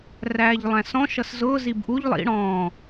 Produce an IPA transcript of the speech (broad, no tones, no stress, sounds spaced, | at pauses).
r æː ʎ lˠ æ̃ s ɔ̃ ʃ ʌ s z ʊː z i b ʔ u ʎ lˠ ḭ ɽ ɔ̃ː